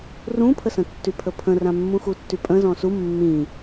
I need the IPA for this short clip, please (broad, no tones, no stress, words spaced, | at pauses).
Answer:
rũpʰəsə̃ tːypʰəpʰə̃rã mːũxutːypʼə̃ zɔ̃su mːĩ